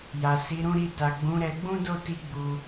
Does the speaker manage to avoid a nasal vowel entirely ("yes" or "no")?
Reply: no